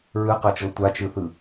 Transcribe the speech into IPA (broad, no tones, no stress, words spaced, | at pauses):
ɹɯqɤt͡ʃɤ tʷat͡ʃɯθɯ